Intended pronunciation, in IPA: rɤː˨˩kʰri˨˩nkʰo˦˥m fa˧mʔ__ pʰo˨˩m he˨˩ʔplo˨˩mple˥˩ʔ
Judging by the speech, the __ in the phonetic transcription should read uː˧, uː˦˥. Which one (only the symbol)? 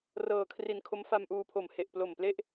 uː˧